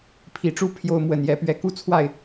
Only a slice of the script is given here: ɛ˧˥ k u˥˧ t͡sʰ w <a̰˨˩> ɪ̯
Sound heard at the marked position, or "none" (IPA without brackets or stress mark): a˥˩